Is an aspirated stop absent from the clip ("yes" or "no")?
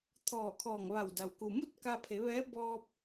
no